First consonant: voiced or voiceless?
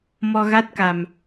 voiced